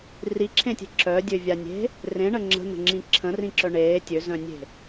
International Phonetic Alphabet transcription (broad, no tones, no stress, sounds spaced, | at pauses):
r i ǁʰ ẽ tʲ e̤ ǁ œ dʲ ø vʲ a nʲ e̤ | r ẽ ɳ ə ŋ͡ǁ ə̤ n̪ ə̤ ŋ͡ǁ ĩ ǁʰ ə̃ r ĩ ǁ œ ɳ eː tʲ ø z œ̃ nʲ e̤